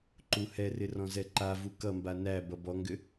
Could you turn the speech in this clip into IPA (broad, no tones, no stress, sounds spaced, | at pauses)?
ǃ u h ɛ r ɪ r ɔ̃ z ɛ ǃ a v u k ʌ m b a n æ b ʌ b ɔ ŋ ɡ ʏ